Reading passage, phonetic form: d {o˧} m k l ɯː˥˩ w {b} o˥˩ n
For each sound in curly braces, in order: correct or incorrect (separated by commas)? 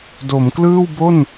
incorrect, correct